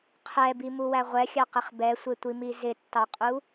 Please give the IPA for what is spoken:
qʰ ɛ b i m u w æ ʁʷ ɛ xʲ ɑ q ɪ χ b ɛ sʷ ɪ tʷ i m i z ɪ tː ɑ qʼ u

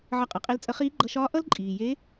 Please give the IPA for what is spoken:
ʕ ʌ˧ qʼ ʌ˩˧ qʼ e˧˥ l t͡sʼ ə˧˥ χ iː˧˥ ɡ͡ǃ ʌ˧ ʃ ɒː˧˥ ʔ ʌ˥ l ǃʼ iː˩ j e˧˥

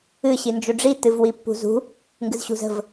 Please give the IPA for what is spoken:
ɨ ɕ i n d͡ʒ u ɖ͡ʐ i t ɨ v w i pː ṳ z ṳ | ŋ ɡ ɨ z ɕ ṳ z ə̤ v

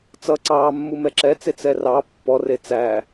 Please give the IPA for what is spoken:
t͡s ʌ ǀ ɑː mː u m ɛ ǁ ɛ t͡s e t͡s ɛ r ɑ pː ɔ r e t͡s æ

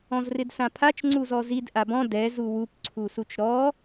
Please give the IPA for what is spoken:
ɔ̃ z r ɪ d s ã pʰ a t͡ʃ ŋ͡ǀ u z ɔ z i d ʔ a b ɔ̃ d ɛ z u w u p ǀʰ u s u t͡ʃ ɾ ɔ

